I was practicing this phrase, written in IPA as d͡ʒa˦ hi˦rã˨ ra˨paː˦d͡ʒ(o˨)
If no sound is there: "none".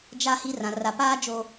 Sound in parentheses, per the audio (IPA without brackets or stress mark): o˨